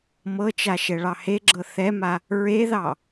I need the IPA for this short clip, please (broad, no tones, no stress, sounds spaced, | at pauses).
m ɤ t͡ʃ a ʃ ɛ ɭ ɑ h e ɡ͡ǁ ɤ θ ɛ m a | ɹ e ð ɑ